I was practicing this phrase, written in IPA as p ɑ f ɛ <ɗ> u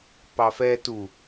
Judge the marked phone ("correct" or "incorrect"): incorrect